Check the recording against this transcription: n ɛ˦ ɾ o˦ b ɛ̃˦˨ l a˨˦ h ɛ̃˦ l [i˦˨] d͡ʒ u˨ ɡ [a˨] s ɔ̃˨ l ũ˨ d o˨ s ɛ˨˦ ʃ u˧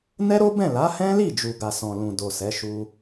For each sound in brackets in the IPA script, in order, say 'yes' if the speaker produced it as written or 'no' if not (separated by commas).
yes, yes